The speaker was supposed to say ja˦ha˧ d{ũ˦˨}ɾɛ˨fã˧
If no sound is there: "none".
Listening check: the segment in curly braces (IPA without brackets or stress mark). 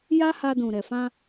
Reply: ũ˨